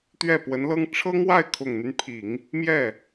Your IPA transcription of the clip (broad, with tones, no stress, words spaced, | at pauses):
t̪ɥɛ˥˩pwə˧˥nlɤ˥ŋ ʈ͡ʂʰɤ˥ŋwa˥˩ɪ̯kʰʊ˨˩ŋn̪y˦n pʰi˨˩˦ŋ | mjɛ˥˩